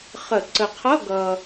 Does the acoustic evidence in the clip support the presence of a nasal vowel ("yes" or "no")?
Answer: no